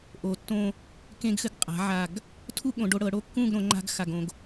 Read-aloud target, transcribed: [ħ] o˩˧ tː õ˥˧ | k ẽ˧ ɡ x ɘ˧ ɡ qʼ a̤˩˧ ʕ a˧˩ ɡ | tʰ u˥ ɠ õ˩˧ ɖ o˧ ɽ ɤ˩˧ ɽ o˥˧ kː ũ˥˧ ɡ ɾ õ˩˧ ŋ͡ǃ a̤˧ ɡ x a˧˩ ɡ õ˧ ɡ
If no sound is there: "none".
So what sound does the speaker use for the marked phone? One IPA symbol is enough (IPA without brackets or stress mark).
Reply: ʔ